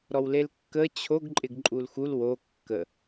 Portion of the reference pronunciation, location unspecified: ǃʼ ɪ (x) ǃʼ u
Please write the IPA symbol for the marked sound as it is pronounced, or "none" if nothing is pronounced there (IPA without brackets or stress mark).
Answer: ɡ